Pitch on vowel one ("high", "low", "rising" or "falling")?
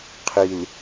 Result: low